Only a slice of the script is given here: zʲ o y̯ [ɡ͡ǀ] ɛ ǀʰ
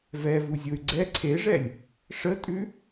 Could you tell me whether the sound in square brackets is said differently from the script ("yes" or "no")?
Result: no